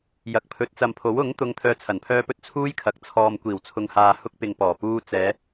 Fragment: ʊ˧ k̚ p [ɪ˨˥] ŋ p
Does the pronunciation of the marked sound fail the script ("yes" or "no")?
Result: yes